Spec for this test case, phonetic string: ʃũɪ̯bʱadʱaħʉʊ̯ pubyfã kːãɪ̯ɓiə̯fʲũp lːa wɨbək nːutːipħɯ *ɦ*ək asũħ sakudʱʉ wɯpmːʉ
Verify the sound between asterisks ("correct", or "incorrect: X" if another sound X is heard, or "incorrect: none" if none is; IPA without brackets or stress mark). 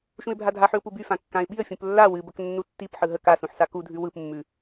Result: correct